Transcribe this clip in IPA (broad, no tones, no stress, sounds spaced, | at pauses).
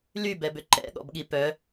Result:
l y b ɛ b ʏ ǃ ɛ̰ ɠ ɔ̰ b ɠ i p œ